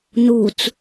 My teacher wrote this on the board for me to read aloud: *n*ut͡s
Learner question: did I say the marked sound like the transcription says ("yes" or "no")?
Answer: yes